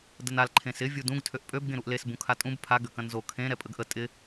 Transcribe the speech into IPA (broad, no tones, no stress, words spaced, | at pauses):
dənal ǃʰẽsɪ vʲudũɡ tʰøʔpʼøb ɡẽɾuʔles bũkʰatʼũb pʰa ɡøkɐ̃nzo kʰẽ ɾɛpʼəɡʔə tʼɪ